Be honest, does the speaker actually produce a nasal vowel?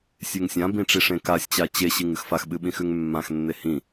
yes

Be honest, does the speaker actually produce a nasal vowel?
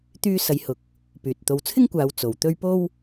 no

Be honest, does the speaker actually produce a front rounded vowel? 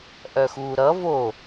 yes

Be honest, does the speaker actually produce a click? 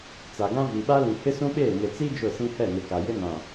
no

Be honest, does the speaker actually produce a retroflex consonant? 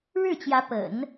yes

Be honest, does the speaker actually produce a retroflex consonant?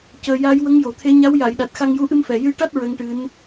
yes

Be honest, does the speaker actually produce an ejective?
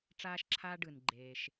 no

